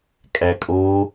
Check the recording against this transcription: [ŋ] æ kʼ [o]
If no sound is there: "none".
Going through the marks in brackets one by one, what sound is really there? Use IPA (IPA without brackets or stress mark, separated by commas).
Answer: kʼ, o